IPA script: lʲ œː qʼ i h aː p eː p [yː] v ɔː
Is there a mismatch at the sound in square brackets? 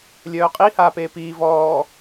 yes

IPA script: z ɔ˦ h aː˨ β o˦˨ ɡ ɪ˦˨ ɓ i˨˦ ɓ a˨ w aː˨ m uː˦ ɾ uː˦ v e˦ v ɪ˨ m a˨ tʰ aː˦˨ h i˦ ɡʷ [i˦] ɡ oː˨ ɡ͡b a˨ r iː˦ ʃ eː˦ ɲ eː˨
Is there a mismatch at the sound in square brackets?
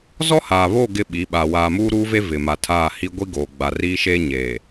no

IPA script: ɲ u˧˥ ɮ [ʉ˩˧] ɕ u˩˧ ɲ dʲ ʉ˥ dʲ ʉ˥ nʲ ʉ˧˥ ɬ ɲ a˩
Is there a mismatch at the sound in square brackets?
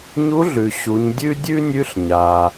yes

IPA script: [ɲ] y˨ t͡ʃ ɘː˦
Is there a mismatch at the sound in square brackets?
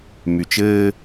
yes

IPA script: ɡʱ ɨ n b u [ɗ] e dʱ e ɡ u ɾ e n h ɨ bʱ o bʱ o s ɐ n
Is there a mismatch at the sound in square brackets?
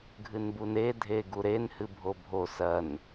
yes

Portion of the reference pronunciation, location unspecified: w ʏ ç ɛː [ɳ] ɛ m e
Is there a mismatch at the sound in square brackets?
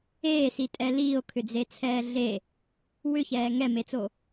yes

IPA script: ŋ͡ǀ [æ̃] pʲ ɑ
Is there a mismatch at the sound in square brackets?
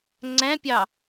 no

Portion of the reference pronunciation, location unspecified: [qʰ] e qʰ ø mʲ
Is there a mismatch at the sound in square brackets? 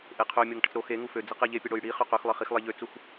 yes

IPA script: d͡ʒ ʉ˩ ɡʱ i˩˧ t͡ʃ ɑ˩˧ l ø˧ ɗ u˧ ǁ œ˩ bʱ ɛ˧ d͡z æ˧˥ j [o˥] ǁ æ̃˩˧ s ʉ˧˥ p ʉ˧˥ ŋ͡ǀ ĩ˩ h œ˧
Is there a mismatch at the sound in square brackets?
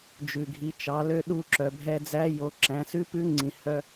yes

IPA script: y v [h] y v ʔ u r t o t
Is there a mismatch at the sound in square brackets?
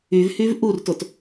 no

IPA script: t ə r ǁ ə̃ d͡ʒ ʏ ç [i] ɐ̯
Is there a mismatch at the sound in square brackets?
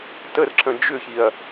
no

